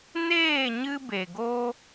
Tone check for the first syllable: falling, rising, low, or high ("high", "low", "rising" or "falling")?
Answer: falling